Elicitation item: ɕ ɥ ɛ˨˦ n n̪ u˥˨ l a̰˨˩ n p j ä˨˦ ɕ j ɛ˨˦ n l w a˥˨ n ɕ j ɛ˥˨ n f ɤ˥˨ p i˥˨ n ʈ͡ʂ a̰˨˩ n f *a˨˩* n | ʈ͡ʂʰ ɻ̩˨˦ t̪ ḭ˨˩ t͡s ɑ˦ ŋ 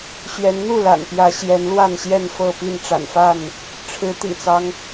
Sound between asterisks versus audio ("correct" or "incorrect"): incorrect